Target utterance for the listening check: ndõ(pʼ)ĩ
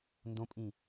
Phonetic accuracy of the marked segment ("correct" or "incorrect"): correct